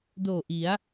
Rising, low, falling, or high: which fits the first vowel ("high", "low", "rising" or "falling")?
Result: low